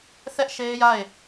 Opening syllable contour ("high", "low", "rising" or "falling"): high